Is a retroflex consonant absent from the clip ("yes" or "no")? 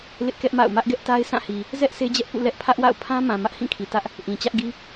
yes